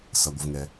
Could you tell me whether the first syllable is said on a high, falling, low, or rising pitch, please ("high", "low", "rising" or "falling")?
low